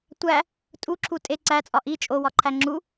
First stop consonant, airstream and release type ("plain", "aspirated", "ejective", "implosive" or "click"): plain